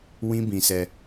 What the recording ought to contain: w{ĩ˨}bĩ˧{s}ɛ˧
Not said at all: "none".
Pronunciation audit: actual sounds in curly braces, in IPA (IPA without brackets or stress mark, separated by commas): ĩ˦, s